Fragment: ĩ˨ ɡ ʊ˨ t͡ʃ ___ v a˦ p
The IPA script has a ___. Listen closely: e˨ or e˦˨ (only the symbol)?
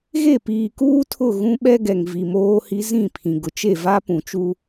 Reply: e˦˨